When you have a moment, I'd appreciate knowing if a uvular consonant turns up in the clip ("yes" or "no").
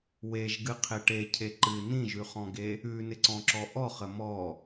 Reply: yes